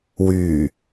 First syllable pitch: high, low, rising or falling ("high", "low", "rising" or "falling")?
low